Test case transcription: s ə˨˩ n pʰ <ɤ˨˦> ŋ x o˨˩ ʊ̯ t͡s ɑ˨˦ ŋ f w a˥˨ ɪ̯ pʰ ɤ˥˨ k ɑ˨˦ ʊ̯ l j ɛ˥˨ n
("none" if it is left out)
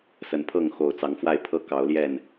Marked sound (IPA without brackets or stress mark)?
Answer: ɤ˥˨